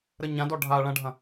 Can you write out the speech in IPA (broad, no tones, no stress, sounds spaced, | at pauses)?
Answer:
ɾ ə ɲ ã d ɔ ɖʱ a ɭ ɐ̃ ɖʱ ɐ̃